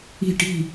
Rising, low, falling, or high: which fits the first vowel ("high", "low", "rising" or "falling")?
falling